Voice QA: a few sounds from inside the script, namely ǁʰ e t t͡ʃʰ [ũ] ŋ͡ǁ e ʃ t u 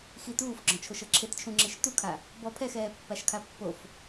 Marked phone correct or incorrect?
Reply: correct